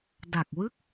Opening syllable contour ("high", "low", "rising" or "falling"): low